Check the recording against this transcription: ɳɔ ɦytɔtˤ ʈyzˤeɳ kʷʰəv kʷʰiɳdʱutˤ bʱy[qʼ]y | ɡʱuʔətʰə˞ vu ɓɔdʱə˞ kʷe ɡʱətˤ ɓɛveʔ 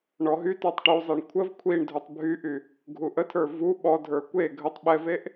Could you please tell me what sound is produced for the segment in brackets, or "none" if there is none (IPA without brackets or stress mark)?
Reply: ʔ